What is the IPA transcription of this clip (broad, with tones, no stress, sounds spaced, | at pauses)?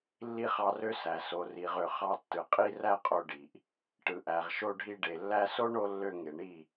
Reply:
lː i˦ χ ɑ˧ r ø˦ s æ˨ s o˨ r i˨ ʁ ø˨ χ ɑ˧ tː ɯ˨ qʼ i˧ r æ˧ qʼ o˧ ɖ i˨ ʔ | ʈ ɯ˨ ʔ æ˨ ʁ ʃ o˧ ɖʱ i˧ ɖ e˨ lː æ˦ s o˦ ɳ o˦ lː ø˧ ŋ e˨ ɳ i˦˨